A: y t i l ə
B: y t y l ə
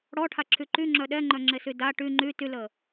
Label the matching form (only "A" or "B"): B